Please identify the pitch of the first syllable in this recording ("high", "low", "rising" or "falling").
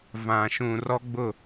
low